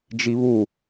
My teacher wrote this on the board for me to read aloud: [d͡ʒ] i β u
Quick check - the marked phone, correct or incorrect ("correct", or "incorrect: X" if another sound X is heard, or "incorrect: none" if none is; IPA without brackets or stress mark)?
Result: correct